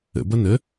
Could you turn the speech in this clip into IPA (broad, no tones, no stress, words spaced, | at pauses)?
ə̰bʌ nə